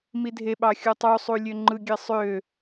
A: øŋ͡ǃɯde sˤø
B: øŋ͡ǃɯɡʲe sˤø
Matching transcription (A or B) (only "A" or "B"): B